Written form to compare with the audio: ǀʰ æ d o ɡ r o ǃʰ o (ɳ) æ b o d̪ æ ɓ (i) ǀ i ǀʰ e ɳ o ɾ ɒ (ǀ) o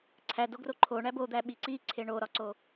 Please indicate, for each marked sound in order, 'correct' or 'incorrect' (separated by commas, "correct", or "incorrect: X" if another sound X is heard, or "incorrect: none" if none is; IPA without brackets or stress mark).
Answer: correct, correct, correct